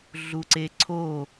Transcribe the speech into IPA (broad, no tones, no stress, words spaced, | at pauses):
ɮuǀeǀʰo